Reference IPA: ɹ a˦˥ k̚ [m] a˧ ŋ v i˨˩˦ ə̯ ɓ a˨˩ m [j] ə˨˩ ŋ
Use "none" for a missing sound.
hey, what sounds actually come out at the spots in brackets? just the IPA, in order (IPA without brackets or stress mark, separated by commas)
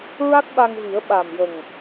ɓ, j